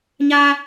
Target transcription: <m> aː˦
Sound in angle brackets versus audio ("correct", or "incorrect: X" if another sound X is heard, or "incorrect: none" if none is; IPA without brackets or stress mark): incorrect: ɲ